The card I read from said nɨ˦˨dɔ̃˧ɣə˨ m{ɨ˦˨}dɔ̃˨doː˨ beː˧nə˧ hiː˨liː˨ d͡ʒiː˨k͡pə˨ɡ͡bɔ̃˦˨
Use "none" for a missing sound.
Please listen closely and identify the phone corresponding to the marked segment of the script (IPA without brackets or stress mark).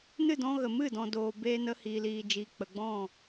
ɨ˦˨